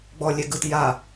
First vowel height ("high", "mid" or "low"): mid